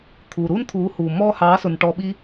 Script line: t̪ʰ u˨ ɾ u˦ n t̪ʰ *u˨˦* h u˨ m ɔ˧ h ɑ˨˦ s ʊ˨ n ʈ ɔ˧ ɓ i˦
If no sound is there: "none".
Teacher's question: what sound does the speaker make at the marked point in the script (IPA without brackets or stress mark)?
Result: u˨˦